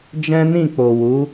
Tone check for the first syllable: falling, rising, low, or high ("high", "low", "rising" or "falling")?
high